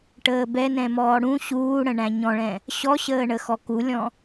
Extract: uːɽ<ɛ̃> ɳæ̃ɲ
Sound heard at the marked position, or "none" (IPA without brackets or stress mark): ə̃